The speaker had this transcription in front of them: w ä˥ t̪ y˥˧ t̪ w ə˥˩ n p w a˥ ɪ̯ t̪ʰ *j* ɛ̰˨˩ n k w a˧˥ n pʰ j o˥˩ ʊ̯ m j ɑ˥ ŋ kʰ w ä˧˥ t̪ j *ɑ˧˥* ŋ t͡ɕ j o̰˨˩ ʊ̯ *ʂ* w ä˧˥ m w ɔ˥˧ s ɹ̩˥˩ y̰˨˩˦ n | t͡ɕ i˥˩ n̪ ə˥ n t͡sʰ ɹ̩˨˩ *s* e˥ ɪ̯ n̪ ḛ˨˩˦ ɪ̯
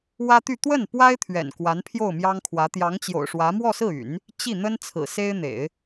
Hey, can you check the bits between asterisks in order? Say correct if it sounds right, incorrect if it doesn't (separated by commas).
incorrect, correct, correct, correct